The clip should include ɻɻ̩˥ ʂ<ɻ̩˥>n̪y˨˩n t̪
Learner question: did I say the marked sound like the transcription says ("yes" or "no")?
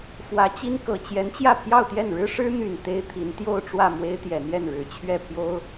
yes